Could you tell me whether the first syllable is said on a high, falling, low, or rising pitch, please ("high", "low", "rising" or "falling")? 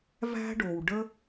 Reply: high